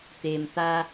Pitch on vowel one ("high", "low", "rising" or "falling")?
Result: low